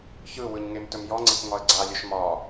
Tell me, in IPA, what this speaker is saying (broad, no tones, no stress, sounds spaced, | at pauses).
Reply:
ç ɯ w ɯ ɲ ŋ e m t ɵ m j ɔ ŋ͡ǀ e k ŋ ɒ ə̯ ɡ͡ǀ a lʲ ɵ ʃ m ɒ